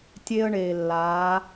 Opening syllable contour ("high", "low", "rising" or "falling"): high